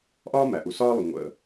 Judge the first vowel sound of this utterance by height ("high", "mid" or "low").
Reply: low